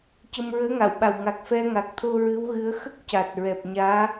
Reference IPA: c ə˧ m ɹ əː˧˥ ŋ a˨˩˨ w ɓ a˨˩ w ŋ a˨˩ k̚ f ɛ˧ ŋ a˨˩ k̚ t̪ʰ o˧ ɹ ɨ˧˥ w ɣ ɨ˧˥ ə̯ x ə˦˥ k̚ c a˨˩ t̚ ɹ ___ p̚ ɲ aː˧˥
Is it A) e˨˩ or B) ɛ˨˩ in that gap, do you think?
B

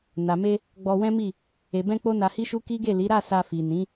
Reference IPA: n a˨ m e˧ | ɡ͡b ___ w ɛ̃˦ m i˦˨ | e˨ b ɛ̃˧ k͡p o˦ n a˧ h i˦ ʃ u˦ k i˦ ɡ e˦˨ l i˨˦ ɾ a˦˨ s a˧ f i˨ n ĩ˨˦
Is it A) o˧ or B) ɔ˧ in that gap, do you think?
B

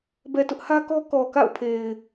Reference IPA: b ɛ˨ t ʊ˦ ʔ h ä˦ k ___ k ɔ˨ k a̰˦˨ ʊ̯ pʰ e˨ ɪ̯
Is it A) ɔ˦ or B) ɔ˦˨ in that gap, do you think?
A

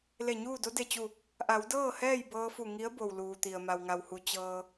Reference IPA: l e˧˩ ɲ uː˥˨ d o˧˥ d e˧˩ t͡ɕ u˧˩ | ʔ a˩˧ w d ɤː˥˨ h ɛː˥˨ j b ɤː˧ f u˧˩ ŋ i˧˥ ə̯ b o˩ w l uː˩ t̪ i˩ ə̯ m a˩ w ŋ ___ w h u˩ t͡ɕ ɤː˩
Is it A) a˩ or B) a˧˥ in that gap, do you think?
A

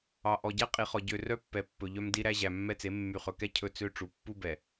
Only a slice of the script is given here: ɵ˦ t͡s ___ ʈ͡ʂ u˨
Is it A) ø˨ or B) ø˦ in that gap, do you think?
B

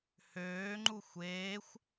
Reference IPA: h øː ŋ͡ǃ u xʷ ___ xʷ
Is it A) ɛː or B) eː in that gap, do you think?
B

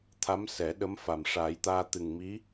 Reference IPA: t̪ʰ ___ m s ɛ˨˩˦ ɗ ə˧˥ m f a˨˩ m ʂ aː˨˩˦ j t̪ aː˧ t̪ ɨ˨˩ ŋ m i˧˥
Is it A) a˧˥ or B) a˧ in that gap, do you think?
A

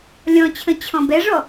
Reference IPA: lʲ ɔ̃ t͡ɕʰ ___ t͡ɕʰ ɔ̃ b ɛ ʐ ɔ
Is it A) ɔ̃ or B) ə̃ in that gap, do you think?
B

